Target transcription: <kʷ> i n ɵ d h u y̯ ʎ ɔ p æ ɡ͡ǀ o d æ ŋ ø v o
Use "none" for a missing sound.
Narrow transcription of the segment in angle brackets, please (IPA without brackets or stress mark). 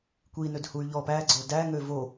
kʷ